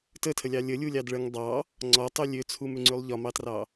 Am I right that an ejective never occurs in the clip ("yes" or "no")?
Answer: yes